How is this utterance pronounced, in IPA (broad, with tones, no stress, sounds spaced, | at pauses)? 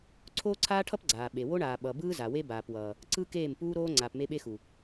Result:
ǀʰ oː˦ ǀʰ aː˦ ʈʰ ʌ˦ p ɡ͡ǀ aː˨ ɓ e˨ w o˦ ɳ aː˨ ɓ ʌ˨ b ɯː˦ z a˨ w e˦ b aː˨ p w ʌː˨ | ǀ ɯ˦ k eː˦˨ m p uː˦ ɾ oː˦ ŋ͡ǀ aː˨ p m e˦ ɓ e˦ x u˨